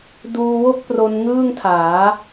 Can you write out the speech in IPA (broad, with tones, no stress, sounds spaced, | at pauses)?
d uː˧ w o˥˩ k̚ p r o˦˥ n ŋ ɯː˥˩ ŋ tʰ aː˩˦